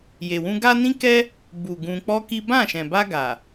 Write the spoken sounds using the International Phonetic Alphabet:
je˨wũ˧ ɡa˦nĩ˦kɛ˦ | bu˨ ɡũ˧k͡pɔ˦ki˦ bã˦˨ʃɛ̃˨ba˧ ɡa˨

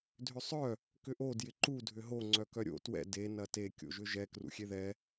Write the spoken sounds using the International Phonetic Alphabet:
dʱʏsˤœ | kʏʔo djɪǃu dʱʏɦo ŋ͡ǀœkœɾʲo̰ twɛ̰ de nɐte kʲo̰ʒʏʒɛ krṵxʲeðɛ

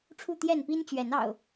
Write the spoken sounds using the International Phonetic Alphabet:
ʈ͡ʂʰu˥˨t̪jɛ˥˨npi˦n t͡ɕɥɛ˨˦nɑ̰˨˩ʊ̯

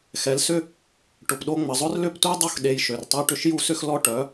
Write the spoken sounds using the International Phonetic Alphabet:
xɛ˩˥lsʏ˥ | ʈʊ˩pɗo˧ŋ͡mə˩ zˤʊ˥rlʏ˥˩ptʷi˥dˤo˥˩x ɗe˧jʃø˩rtˤɛ˥ ʈʏ˥ʃju˥sʏ˥xlɔ˥ ʈœ˩˥

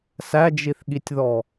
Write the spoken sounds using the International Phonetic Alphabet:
sæd͡ʒiθɠitʲðɔ

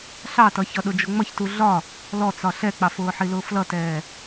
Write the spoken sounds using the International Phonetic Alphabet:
ɬɑtʌçʌɗʊ d͡ʒʊŋ͡mʌçtu ɮɒ | lɔt͡sɒ ɬɛk͡pɑfʊːħi lʊːflʌtɛː

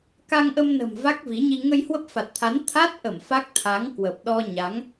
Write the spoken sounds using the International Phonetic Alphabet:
ka˧ŋʔə˧mnə̤˨˩m va˦˥k̚vi˨˦ɲi˧ ŋə˧jhwə˦˥p̚fa˨˩t̚t̪ʰa˨˦n t̪ʰa˦˥t̚ʔə˧˩m fa˦˥k̚t̪ʰa˨˦ŋ kwə˨˩p̚ɗɔ˧ ɲa˨˦ŋ

